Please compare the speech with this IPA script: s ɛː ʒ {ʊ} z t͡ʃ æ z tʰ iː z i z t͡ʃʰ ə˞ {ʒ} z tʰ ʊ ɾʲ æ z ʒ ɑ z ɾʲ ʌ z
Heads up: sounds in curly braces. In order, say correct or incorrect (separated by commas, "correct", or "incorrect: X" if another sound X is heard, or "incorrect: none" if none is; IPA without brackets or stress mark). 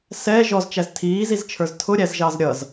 incorrect: ɔ, incorrect: none